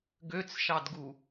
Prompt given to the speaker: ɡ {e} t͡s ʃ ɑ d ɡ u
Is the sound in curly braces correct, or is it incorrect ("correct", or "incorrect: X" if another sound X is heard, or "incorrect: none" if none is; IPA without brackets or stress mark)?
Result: incorrect: ø